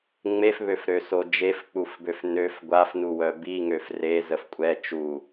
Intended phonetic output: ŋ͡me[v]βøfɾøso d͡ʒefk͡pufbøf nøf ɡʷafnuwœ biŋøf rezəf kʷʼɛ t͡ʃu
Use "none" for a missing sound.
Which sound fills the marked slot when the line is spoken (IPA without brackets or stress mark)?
f